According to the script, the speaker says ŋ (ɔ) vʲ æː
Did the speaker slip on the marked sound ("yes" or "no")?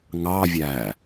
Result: yes